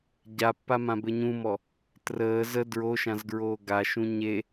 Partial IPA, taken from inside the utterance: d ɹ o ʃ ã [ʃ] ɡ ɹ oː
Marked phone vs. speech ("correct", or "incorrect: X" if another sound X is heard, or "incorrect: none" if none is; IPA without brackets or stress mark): incorrect: z